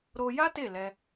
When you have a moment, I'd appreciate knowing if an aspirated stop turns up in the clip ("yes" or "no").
no